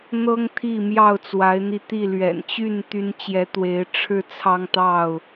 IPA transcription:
n̪ɤ˦ŋ t̪ʰi˥˨mjɑ˥˨ʊ̯t͡swa˨˦ɪ̯n̪i˧ t̪i˥˨ lɥɛ̰˨˩nt͡ɕy˥˨n t̪y˦n t͡ɕjɛ˨˦t̪we˨˦ɪ̯ ʈ͡ʂʰɻ̩˦ t͡sʰɑ˦ŋ t̪ɑ˥˨ʊ̯

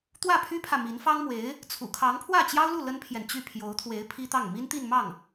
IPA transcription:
t̪wä˥˩pʰy˥pʰä˨ mi˧˥nfɑ˥ŋmwe˧˥ɪ̯ | t͡sʰṵ˨˩ kʰɑ˧˥ŋpʰwä˥˩t͡ɕjɑ˥ʊ̯lu˥˩ lə˥npʰjɛ˨nt͡ɕy˥˩ pʰjo˧˥ʊ̯t̪ʰwe˧˥ɪ̯ pʰi˥t̪ɑ˥˩ŋ mi˥n t̪i˥˧nmɑ˥˩ŋ

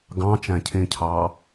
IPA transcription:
ɡɑ̃t͡ʃæ̃cʰẽcʰɑː

